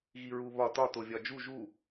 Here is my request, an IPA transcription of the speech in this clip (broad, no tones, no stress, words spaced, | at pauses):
ɣiɹuβɒ tɒ tovʲɒd͡ʒu ʒu